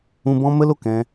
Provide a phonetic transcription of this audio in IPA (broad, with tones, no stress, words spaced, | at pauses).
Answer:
ũ˧bɔ̃˦mə˦lo˨k ɛ̃˧